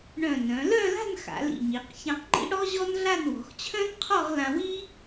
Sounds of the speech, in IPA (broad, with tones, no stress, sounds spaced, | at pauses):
ɳ œ̃˧˩ n œ̃˩˧ l œ˥˧ l a̤˥˧ n x a̰˩˧ l ḭ˧˩ ɲ i˩˧ q ç ã˧ q ŋ͡ǃ ḭ˥ ɽ ɔ˥ ʑ ɔ˥ n ɮ a˥˧ n w ɔ̤˩˧ x t͡ɕʰ œ̃˥ n qʰ ɔ˥˧ ʁ l ã˧ w i˥